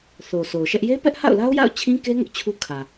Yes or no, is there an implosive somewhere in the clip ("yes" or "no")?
no